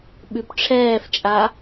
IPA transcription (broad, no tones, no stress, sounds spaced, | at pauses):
ɓ ʉ p ʈ͡ʂʰ ɛː f t͡ʃʼ a